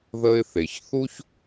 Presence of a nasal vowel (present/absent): absent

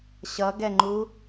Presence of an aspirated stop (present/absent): absent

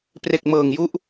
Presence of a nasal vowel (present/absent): absent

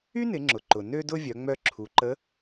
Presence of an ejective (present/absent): absent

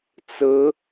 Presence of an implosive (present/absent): absent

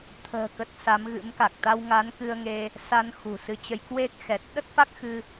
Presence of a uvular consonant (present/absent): absent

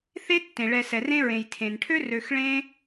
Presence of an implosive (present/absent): absent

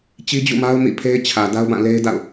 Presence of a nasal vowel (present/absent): present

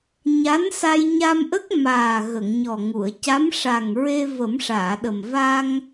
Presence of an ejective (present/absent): absent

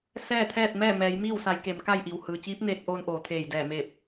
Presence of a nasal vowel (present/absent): absent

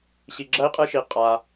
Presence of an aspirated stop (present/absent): absent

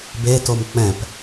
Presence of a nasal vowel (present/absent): present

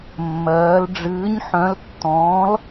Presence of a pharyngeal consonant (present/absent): present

